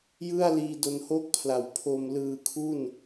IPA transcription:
j ɯ˥˩ a̯ l iː˧ d o˧ n h o˥˩ k̚ pʰ l a˨˩ w pʰ o˧ m l ɯː˧ kʰ u˥˩ n

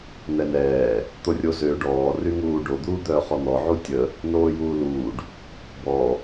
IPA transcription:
n̪ ɛ n ɛː | t̪ o rʲ o z ø ɖ ɔː r y ŋ uː ɖ o d̪ uː d̪ œː χ ɔ n̪ ɔ ʕ u tʲ ə | n oː j uː l uː ɖ | b ɔ

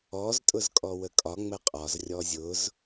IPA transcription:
ɔ z tʼ ʊ z kʼ ɔ w ə kʼ ɒ ŋ͡m ə qʼ ɒ z rʲ ɔ zʲ ʊ z

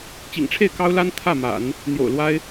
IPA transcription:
t͡ɕ ḭ˨˩ ŋ ʈ͡ʂʰ e˥˩ ɪ̯ k ɑ˥ ʊ̯ l a˥ n t̪ʰ ä˥˩ m a̰˨˩˦ n | n̪ j o̰˨˩ ʊ̯ l w a˥ ɪ̯

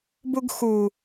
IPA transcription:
b u ɡ x u

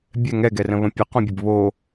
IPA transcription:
bʲ ɛ ŋ ɛ ɡ ɛ r ə̃ β ə̃ pʲ ʊ q õ bʲ ə b β o

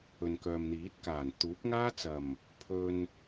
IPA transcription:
ɵ˨ n k œː˨ m n̪ iː˨˥ t̚ k aː˨˩ n t̪ uː˨˥ p̚ ŋ aː˥ t͡s ɐ˨˩ m | pʰ ɵ˧ n

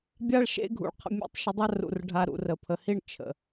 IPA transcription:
bʲ a˦ ɭ ʃ ḛ˦ ɡʱ ṵ˨ ɭ qʰ ə̰˧ mʲ ṵ˧ tˤ ʃ ə˧ dˤ a˦ r ṵ˨ r ɖʱ a˧ ɾ ṵ˨ r ə˨ pʰ ə˨ h i˦˨ ɳ t͡ʃʰ ə̰˨

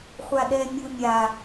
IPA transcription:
χʷ a ɗ ɛ mʲ u mʲ a

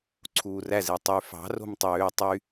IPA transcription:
ǀʰ uː r æ z e tˤ y f ɑ̤ r o̤ m tˤ øː tˤ y

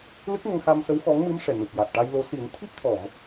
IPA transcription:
l ɨ˦˥ k̚ ŋ ə˧ ŋ x a˧ m s ə˧˥ w x ɔ˧˥ ŋ m ɨ˧˥ m ʂ ɛ˨˩ n u˨˩ p̚ j a˨˩ t̚ ʈ a˧ j l o˧˥ s i˨˩˦ n t̪ʰ i˦˥ p̚ t̪ʰ ɔ˨˩˨ m

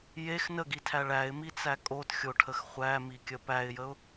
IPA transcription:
j e x n ə ɡ i tʰ æ ɭ æ ɪ̯ m i t͡s æ kʼ o t xʲ o ʈʰ ə x χʷ æ m i kʲ ə p æ ɪ̯ j ə ʊ̯

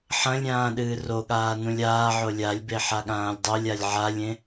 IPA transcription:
ħ ɐ̃ lʲ ɾʲ ãː ɗ ɨː r o ɠ aː n ũ lʲ aː ʕ o lʲ a lʲ b e ħ a ɠ ãː lʲ dˤ o lʲ a lʲ ʕ a lʲ ẽ

